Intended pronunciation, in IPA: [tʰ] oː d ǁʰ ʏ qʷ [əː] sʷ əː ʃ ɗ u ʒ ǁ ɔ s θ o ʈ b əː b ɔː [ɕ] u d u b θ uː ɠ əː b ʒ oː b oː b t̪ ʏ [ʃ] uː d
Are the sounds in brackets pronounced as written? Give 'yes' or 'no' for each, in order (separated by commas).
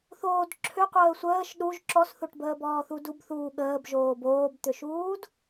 no, yes, no, yes